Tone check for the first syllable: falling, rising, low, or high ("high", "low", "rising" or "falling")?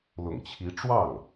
low